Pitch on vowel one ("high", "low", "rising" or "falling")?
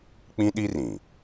high